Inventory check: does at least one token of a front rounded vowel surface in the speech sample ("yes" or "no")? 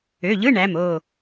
yes